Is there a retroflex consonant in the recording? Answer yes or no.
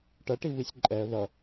yes